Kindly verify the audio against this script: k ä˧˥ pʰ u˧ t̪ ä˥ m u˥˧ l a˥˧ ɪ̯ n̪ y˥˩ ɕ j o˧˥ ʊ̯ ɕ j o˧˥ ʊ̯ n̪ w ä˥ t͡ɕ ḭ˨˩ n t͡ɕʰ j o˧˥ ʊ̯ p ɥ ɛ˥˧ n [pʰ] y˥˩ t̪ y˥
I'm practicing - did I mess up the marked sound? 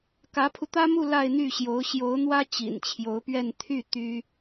yes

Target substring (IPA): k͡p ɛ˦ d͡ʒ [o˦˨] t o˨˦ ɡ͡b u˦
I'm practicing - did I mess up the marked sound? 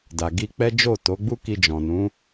no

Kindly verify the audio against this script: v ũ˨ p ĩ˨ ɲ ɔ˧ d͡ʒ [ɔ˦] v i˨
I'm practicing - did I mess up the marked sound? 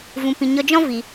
yes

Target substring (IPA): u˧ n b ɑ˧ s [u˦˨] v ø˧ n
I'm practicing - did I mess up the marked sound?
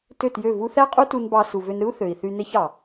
yes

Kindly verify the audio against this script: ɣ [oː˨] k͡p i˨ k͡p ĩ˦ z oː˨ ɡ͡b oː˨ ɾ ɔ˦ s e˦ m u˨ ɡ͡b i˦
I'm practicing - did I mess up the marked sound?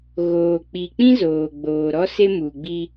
no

